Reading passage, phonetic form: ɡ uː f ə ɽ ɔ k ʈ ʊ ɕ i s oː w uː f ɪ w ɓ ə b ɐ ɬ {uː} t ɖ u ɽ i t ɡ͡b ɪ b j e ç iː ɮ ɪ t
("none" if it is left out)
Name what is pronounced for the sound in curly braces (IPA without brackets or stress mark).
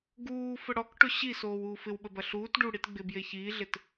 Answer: uː